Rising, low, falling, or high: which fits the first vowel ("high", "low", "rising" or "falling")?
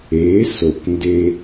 rising